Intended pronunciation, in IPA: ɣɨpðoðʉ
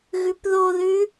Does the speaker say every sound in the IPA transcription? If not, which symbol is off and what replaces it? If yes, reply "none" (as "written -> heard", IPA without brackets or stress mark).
ɨ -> ʉ